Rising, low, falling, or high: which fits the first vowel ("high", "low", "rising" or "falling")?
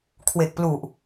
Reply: low